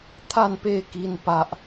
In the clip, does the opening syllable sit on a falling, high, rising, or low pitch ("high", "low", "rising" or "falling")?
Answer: falling